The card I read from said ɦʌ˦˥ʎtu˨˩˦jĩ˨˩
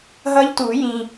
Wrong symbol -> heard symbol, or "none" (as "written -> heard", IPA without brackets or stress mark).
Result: none